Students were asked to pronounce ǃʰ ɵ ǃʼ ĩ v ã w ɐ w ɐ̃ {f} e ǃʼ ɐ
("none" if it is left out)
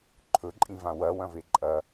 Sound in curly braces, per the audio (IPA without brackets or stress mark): v